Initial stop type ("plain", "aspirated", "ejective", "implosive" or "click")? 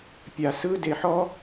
plain